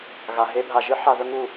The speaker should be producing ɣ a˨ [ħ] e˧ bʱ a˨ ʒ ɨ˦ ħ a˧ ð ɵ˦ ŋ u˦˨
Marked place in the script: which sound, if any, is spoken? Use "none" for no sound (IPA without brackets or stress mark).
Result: ɦ